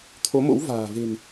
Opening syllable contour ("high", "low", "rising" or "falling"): rising